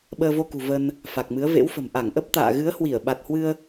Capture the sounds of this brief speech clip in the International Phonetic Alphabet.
ɓ əː˧ v o˧ k ṳ˨˩ v ə˧ n | f a˨˩ k̚ m ɨ˨˦ ə̯ v ḛ˧˥ w f ə̤˨˩ m ʔ a˧˩ ŋ ʔ ə˦˥ p̚ t̪ a̰ː˧˨ ɣ ɨ˨˦ ə̯ h w i˧˩ ə̯ ɓ a˨˩ t̚ h w ɨ˧ ə̯

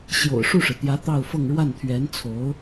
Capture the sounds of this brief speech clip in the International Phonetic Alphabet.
ɕ j o̰˨˩ ʊ̯ ʂ u˥˩ ʂ ɻ̩˩ t̪ j ä˧˥ t̪ ɑ˥˧ ʊ̯ f ɤ˥˧ ŋ ɻ w a˥˩ n t̪ʰ ɥ ɛ˧˥ n t͡sʰ o˧˥ ʊ̯

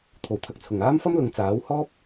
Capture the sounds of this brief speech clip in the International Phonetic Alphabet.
t̪ʰ o˨˩ w t̪ʰ ɐ˧ k̚ t͡sʰ ʊ˨˩ ŋ aː˥ m f ɐ˥ m l ʊ˨˧ ŋ t͡s aː˨˥ w h ɔː˥ p̚

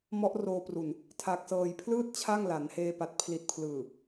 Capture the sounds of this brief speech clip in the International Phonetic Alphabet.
m ɔ˦˥ ʔ r oː˧ p r u˨˩ n | tʰ a˨˩ k̚ s ɤː˨˩ j pʰ l ɯː˥˩ t̚ t͡ɕʰ a˥˩ ŋ l a˩˦ n h eː˧ p a˨˩ t̚ pʰ l i˨˩ t̚ pʰ l ɯː˨˩

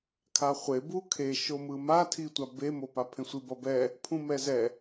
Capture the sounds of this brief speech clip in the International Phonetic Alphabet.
kʰ a χʷ e b u kʰ e ʃ o m ɯ m a tʰ i tʷ a b e m o p a pʰ ẽ sʷ i b ʌ b ɛ | pʰ ũ m ɛ z ɛ

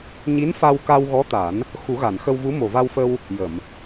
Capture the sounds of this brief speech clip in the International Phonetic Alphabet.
ɲ i˧˥ n f a˧ w k a˧ w ɣ ɔ˧˥ t̪ a˨˩˦ n | x u˨˩˦ ɣ a˨˩˨ n x ə˧ w v u˧˥ m o˨˩ v a˧ w f ə˧ w | j ə˨˩˨ m

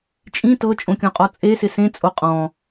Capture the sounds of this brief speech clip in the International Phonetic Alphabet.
t͡ʃʼ ĩ t ɤ t͡ʃʼ õ kʲ õ qʼ ɔ t͡sʼ e s ɪ s ẽ t͡sʼ o qʼ ɔ̃

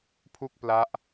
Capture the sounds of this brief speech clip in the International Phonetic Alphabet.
pʰ u˥˩ k̚ p l a˦˥ ʔ

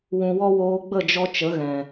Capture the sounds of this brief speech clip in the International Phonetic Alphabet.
w ũ˨ w ɔ˦ w oː˧ ɡ͡b ə˦˨ d͡ʒ ɔ˧ t͡ʃ ə˨˦ ɣ ɛ̃˨

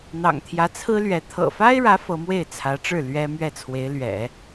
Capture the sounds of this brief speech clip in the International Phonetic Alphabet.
n̪ ɑ̰˨˩ ŋ t̪ʰ j ä˧˥ t͡sʰ ɹ̩˥ l ɥ ɛ˧˥ t̪ʰ ɤ̰˨˩ f a˥ ɪ̯ ɻ ä˧˥ f ɤ˧˥ m w e˥˩ ɪ̯ t͡sʰ ä˧˥ ʈ͡ʂ ɻ̩˥˩ l ɥ ɛ˥ m ɥ ɛ˥˩ t͡sʰ w e˧˥ ɪ̯ l ɥ ɛ̰˨˩˦

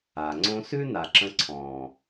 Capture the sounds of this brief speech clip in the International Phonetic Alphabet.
a˨ ŋ͡ǀ õ˦ s ʉ˦ n a˨ ǁ ə̃˧ ǀʰ ɔ̃ː˨

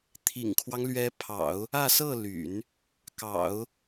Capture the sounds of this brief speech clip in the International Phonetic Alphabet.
t̪ʰ ḭ˨˩ ŋ kʰ w ɑ˦ ŋ l ɥ ɛ˧˥ pʰ ɑ̰˨˩˦ ʊ̯ | ä˥˧ s ɤ˥˩ l y̰˨˩˦ n | k ɑ̰˨˩˦ ʊ̯

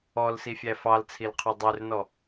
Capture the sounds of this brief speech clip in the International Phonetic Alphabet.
ɔ l s i fʲ æ f ɑ l t͡sʰ i l qʰ œ dˤ y r n ɔ

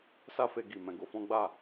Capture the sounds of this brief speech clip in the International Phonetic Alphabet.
s a˦ f e˧ ɡ i˨ m ɛ̃˧ ɡ o˧ f ɔ̃˦ ɡ͡b a˦˨

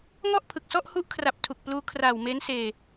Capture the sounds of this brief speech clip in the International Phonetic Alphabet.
ŋ ɔ˥˩ ʔ pʰ ɯ˨˩ k̚ s ɔ˥˩ ʔ h u˦˥ ʔ kʰ r a˨˩ p̚ tʰ u˨˩ k̚ p l uː˦˥ kʰ r aː˨˩ w m e˦˥ n s eː˧

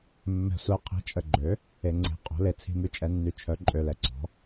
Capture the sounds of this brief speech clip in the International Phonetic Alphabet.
mː ɛ̤˨ sʷ ɛ˨ qʰ i̤˩˥ t͡ʃʼ ə˨ ɡ͡ǃ ø˩˥ | e˨ ŋ͡ǀ e̤˩˥ qʼ o̤˩˥ l e˨ t͡sʰ i̤˨ m y˨ t͡ʃʼ ɛ˨ nː y˩˥ t͡ʃʰ œ˩˥ ǃʼ ø˨ l ɛ˨ ǀ ɔ̤˩˥

